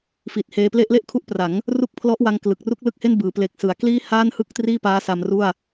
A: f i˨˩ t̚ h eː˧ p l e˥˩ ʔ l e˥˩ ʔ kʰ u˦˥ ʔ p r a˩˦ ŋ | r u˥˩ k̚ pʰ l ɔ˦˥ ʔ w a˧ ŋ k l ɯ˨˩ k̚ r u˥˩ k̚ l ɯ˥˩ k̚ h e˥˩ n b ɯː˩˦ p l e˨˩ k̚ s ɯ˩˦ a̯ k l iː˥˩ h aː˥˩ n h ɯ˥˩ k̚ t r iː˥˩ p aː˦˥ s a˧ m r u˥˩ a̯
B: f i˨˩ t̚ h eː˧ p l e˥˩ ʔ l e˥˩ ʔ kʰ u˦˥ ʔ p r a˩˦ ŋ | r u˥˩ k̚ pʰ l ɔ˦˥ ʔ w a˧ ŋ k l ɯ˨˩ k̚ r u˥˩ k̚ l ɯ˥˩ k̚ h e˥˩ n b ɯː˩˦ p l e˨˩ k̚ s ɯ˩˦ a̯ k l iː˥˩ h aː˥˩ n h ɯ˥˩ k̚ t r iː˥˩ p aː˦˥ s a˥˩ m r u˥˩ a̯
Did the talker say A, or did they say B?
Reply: A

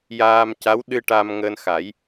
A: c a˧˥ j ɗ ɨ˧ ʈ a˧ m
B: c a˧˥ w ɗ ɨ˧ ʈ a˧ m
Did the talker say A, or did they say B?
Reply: B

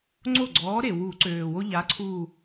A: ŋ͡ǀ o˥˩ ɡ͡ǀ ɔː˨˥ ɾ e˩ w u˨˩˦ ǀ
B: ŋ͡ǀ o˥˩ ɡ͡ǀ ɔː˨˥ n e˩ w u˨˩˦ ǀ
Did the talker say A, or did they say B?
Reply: A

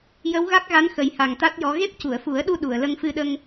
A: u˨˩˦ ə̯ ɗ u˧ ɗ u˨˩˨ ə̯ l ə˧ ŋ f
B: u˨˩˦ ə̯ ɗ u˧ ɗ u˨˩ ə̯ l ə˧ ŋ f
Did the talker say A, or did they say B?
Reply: A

